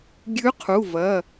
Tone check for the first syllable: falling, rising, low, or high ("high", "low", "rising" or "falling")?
rising